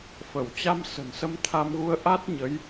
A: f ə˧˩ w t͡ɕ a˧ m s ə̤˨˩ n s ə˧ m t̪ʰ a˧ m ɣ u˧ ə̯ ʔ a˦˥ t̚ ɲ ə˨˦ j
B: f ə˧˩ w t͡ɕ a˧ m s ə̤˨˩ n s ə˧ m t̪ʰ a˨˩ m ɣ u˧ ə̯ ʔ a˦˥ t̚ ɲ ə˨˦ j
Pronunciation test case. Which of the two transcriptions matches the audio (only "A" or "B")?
A